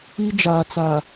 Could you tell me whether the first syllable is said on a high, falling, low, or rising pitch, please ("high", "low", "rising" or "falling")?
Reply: high